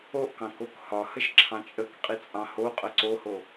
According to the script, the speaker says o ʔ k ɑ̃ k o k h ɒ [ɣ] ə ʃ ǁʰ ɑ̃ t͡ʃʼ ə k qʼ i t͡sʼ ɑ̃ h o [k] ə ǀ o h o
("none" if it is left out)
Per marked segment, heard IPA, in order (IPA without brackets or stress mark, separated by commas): h, qʼ